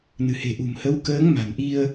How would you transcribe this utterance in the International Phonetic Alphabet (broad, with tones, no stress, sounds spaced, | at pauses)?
n ɨ̤˨˩ h e̤˨˩ ʔ ṳ˨˩ m h ə˨˦ w k əː˨˦ ŋ m a̤˨˩ n ʔ i˧ ə̯